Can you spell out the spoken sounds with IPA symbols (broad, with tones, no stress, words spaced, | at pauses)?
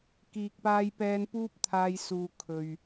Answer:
kiː˨k̚paː˧jpɛː˧n puː˥p̚t̪ʰaː˧j suː˨ kʰɵ˨ɥ